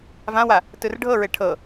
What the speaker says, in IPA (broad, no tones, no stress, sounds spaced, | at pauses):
v ã w a | t ɯ r ɖʱ ɤ ɹ e ʈʰ ɤ